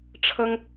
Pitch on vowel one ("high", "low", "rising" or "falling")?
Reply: high